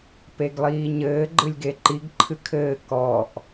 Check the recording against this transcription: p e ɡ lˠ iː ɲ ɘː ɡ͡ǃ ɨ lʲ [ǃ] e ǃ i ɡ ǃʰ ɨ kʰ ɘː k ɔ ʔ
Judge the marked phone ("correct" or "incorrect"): incorrect